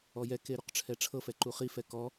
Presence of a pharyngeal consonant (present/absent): absent